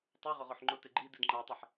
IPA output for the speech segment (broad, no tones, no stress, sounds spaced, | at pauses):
tˤ u ʁ ʊ ʁ o ħ ŋ͡ǃ ʊ t e ɡ͡ǃ i d i d ŋ͡ǃ a tˤ i ħ